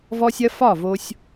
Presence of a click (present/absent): absent